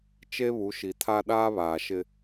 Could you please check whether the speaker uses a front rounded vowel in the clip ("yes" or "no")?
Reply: no